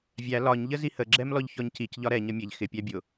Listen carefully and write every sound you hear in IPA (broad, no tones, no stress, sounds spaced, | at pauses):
vʲ æ l ɒ ɲ ʎ ə z i h ə ɡ͡ǁ ɛ m l ɔ ʎ ç ɔ ɲ c i c ʎ ɒ ɾ ɛ ɲ ʌ mʲ ɛ ʎ x ɪ pʲ æ bʲ ʊ